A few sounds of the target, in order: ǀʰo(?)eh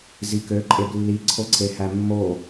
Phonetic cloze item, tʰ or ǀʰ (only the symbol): ǀʰ